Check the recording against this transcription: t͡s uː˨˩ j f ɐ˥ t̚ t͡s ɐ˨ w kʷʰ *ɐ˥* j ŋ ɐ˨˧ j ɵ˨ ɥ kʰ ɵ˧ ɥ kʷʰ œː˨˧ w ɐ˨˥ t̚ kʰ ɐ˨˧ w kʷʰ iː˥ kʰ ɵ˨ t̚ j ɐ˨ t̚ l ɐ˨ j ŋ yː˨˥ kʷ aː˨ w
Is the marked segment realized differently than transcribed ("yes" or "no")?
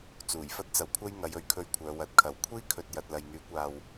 no